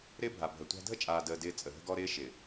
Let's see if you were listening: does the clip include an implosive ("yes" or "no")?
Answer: no